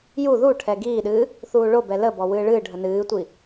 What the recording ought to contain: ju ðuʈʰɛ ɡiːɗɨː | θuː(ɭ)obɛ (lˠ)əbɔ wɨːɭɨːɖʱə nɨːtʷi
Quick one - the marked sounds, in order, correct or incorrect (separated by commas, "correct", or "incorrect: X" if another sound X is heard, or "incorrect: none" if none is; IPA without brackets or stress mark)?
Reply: correct, incorrect: l